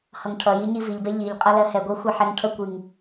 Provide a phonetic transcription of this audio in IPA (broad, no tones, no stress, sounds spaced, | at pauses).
h ʌ ŋ cʰ ʌ j i ɲ i v i ʎ b ɛ ʎ i ʎ qʼ ʌ l ɜ h ɛ ɡʷ ɛ xʷ e ħ ɛ ŋ cʰ ə kʷ i ŋ